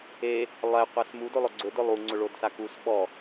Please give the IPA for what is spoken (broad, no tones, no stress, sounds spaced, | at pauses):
e | lˠ ɛ qʷ a s m u d o lˠ ʊ ɡ͡ǀ ʊ d ʊ lˠ u ŋ͡ǀ ʊ ɭ o d s a k u s ɓ ɔ